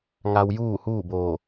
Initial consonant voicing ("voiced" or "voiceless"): voiced